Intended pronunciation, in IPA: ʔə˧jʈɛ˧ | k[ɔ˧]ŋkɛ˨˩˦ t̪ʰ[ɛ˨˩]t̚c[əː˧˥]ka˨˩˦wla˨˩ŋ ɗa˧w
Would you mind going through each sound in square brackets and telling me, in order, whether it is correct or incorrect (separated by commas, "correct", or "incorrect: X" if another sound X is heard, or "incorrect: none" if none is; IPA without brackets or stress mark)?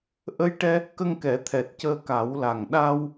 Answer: incorrect: ə˧, correct, incorrect: əː˧